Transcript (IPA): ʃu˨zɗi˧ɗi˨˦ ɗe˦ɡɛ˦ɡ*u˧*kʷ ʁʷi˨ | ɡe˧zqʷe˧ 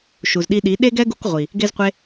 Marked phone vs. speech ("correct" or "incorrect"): correct